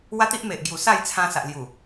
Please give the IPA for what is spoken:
wa˦t̪i˦ʔme˨ʔɡju˨˩ sa˥˧jt͡sʰã˧ sa˨ʔlju˨˩

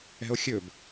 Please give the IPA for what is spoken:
ɛ̤o̯xʲɵb

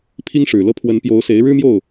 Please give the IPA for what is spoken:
pʰi˥ŋʂɻ̩˨˩lɤ˥˩ pʰwə˧˥npjo˧˥ʊ̯ se˧˥ɪ̯ɻɻ̩˥mjo˥˩ʊ̯

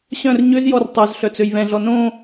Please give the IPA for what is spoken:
ɕœ̃r ɲøzjɔr tˤœz ɬœt͡søjβɛ̃ɮɔ nõ

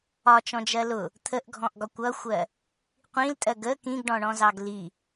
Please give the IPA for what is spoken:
ɒt͡ʃɔ̃d͡ʒɜ lʊ | t̪ʰəʔɡʱɔ̃ʔɡɒ kʷʌxʷɜ | qʷĩltʼɜɡ ə kĩɡɖɔ̃ɳɔ̃zɑɡ li

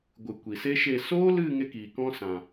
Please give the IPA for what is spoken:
ɡʷɨ˨ kʷi˨se˦ʃe˦˨ soː˦lɨ˦˨ ŋe˦kiː˨kɔ̃˦ sã˨

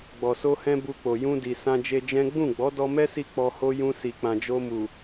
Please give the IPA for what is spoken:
ɡ͡bɔ˨so˧hɛ̃˧ bu˧k͡po˨ jũ˧di˨sã˧ d͡ʒe˧d͡ʒɛ̃˦ ɡ͡bũ˦˨ɡ͡bɔ˨˦ dɔ˧mɛ˦si˧ k͡pɔ˧ho˦ jũ˧si˨k͡pã˨d͡ʒo˧ mu˨

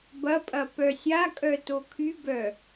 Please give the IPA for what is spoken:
bɐpʼɐ pœsʲakʼœ tokʰybœ

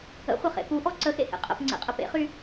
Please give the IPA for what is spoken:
ə̰χʷɐχḛ puʔɔ ǀəxḛhḛ qʼə̰pŋ͡ǀḛqʼə pḛχy

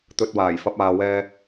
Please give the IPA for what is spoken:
t̪ɵ˧t̚waː˨˩jfɐ˧p̚aː˨ wɛː˧

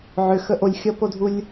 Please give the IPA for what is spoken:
ʕʏxə ʔolʲxʲʌpodʱulʲ

